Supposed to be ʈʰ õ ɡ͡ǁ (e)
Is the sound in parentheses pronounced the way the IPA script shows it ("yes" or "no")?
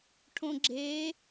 yes